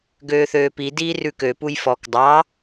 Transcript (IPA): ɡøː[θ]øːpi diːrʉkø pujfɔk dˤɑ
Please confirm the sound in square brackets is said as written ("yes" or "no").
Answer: yes